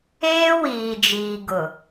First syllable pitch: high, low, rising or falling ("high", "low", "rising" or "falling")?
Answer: high